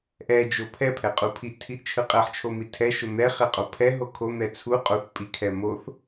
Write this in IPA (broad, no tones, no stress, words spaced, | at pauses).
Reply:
ʔɛd͡ʒo pʰɛpʰɛqʼu pʰiʔtʰiʔt͡ʃʰɯ qʼɛħt͡ʃʰomi tʰɛʃo n̪ɛχɛqʼo pʰɛɦo kʰon̪ɛ t͡sʰu qʼoθ pʼikʰɛ moθ